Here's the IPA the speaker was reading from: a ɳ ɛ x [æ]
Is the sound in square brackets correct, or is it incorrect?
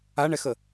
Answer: incorrect